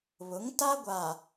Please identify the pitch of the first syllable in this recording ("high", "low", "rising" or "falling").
rising